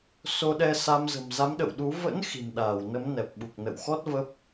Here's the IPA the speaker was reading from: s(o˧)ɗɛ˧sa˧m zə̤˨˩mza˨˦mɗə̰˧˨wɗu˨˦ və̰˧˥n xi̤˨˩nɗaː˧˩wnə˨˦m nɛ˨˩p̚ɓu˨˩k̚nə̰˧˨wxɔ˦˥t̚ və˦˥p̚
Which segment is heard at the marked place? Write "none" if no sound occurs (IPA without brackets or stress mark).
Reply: o˧